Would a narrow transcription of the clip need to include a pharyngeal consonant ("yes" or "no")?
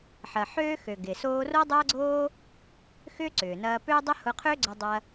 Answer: yes